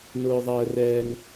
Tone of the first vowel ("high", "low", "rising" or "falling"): high